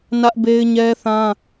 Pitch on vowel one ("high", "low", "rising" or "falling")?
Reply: high